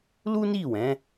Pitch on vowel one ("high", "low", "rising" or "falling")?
high